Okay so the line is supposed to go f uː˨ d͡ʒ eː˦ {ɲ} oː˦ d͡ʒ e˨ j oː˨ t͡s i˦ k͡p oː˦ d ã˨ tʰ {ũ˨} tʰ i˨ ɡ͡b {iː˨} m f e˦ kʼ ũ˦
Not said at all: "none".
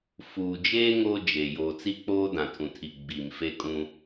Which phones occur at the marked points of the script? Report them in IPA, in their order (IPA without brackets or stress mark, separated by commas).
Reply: ŋ, ũ˨, iː˨